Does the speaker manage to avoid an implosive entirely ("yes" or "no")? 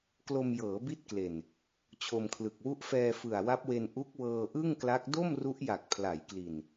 yes